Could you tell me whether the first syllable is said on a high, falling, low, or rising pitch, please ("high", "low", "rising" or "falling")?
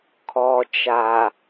low